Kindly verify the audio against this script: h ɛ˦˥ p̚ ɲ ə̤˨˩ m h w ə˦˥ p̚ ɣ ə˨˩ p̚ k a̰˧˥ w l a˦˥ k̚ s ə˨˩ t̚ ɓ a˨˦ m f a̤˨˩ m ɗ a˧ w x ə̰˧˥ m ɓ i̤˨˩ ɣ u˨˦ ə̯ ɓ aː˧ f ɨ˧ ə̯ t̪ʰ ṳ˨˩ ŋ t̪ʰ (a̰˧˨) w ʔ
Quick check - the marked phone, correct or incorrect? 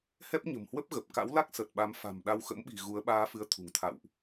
correct